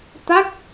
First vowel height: low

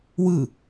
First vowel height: high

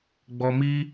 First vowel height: mid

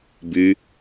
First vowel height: high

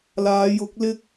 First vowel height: low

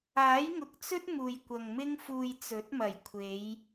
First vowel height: low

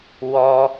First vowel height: mid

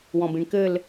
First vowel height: mid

